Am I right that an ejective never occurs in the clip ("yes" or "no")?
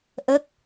yes